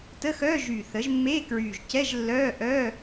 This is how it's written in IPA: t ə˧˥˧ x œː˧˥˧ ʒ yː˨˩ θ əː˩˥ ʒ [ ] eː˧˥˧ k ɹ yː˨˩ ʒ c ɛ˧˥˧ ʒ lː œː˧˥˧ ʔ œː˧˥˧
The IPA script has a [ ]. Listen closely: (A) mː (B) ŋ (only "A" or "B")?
A